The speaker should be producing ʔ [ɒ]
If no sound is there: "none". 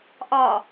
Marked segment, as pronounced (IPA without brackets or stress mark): ɒ